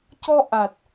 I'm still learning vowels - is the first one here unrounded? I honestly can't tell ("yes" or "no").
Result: no